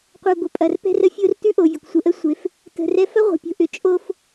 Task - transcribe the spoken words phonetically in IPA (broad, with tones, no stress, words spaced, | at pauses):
qʷɛ˨ ɡʷə˨ pʼɐ˨r pɛ̤˦rə˦ fʲo˦rtʉ˦ʔo˨vʲə˨kʷ sʷə˨ʔə˦sʷe˨˦f | tə̤˨ rɛ˦ fɐ˦ ʁʷə̤˨pʲo̤˨ʔʏ˨ t͡ʃʼo˦f